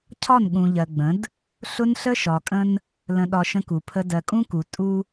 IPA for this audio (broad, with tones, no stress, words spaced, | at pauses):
cʰɒ˦˨nɠũ˨ʎɜ˨ɡ͡bə̃˨˦d | ɬʊ˦nɬə˦ʃɒ˨kʼə̃˦n | lə̃˨ɗɒ˨ ʃə̃˦ku˨pʰə˦ dɜ˨kʼũ˦ku˨ tʼu˦